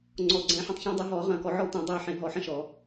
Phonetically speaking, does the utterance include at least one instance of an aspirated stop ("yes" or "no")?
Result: no